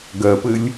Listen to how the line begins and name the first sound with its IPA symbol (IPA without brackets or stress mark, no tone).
ɡ